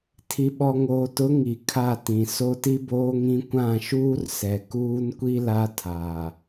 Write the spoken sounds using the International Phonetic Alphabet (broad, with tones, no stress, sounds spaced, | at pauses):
tʰ i˨ ɓ ɔ˨ ŋ oː˨ t ʊ˨˦ ŋ i˨ kʰ a˦˨ t ĩ˨ s o˦ t i˦ b oː˦ ŋ ĩ˦ kʷ ã˦˨ ʃ uː˦ r s ɛ˨ k uː˦ n kʷ i˦ l a˦ tʰ aː˨